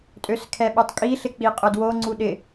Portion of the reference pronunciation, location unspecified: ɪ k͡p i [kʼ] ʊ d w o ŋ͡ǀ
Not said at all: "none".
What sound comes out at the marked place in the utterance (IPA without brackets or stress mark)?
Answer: qʼ